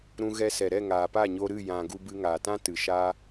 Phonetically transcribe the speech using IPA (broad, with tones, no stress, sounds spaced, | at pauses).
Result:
ɾ ũ˧ ɣ ɛ˧ s ɛ˨ ɾ ɛ˦˨ ŋ aː˨ p a˦˨ ɲ o˧ ɾ ɨ˦˨ j ã˨ ɡ u˧ b ɨ˧ ŋ aː˨ t ã˦ t ɨ˨ ʃ aː˦